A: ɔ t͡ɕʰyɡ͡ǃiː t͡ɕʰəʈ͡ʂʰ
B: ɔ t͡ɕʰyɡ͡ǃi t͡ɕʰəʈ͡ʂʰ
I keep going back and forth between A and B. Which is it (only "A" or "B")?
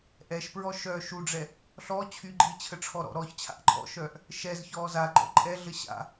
A